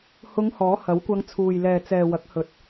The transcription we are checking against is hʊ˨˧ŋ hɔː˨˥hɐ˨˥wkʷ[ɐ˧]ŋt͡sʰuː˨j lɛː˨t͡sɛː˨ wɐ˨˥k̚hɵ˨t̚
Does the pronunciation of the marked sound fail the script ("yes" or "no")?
no